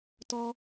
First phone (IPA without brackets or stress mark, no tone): t